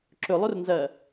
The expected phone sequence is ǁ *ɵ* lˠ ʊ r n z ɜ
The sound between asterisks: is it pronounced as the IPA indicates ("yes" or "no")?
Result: yes